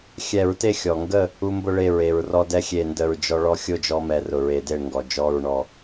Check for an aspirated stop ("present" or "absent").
absent